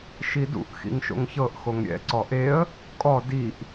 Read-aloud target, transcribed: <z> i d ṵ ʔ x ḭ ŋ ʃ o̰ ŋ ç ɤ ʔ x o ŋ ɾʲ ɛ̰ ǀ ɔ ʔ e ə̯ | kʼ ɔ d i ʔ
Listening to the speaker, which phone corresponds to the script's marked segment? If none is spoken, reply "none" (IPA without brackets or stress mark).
ʃ